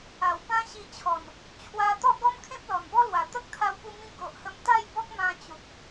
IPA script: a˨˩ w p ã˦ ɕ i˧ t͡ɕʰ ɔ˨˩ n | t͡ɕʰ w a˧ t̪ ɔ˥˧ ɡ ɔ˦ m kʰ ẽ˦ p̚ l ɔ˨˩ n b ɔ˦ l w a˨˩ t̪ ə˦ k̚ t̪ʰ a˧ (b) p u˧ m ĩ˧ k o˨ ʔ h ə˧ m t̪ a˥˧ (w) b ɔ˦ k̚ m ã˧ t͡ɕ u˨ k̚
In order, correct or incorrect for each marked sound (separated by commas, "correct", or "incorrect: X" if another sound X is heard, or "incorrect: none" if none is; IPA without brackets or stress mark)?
incorrect: w, incorrect: j